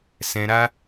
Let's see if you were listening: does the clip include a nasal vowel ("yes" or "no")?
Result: yes